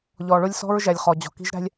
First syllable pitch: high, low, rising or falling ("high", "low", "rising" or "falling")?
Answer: low